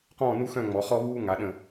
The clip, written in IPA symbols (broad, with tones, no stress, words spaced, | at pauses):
qɔ̃ː˥˧ nu˥xœ̃˥˧ ŋ͡mɔ˩˧ χɔ˥βuː˥ ŋa˩˧ɗə̃˧˩